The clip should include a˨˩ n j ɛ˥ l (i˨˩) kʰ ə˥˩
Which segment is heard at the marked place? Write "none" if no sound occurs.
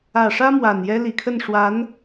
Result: i˨˩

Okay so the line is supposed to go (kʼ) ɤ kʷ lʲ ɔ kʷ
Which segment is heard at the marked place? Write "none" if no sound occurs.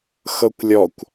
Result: x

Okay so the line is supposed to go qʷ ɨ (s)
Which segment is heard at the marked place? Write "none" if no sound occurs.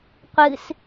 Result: s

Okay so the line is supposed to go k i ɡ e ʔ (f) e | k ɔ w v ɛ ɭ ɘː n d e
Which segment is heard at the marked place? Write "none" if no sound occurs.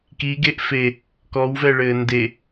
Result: f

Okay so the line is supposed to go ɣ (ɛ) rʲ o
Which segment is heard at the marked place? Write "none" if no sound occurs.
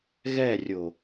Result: ɛ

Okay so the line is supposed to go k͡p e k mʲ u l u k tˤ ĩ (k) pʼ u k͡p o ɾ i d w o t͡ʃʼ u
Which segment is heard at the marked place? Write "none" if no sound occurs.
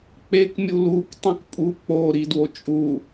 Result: k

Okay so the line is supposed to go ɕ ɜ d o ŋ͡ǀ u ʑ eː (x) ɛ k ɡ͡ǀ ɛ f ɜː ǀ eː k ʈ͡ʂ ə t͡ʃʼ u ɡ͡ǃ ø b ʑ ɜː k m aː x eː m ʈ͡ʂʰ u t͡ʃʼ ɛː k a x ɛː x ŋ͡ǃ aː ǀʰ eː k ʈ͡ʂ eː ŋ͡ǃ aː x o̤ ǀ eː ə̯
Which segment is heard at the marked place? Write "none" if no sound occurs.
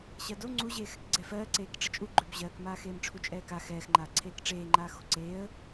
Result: x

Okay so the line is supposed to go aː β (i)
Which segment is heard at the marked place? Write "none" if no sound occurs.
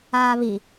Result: i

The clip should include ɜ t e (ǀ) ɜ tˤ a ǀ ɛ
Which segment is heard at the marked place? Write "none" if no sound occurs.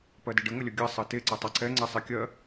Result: ǀ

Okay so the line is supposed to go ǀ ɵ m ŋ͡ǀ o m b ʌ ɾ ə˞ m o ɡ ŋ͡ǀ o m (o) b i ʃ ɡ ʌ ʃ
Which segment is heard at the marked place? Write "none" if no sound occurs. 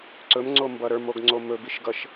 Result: ɵ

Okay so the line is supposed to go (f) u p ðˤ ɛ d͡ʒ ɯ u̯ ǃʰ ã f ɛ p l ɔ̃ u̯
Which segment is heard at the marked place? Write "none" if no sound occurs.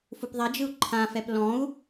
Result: f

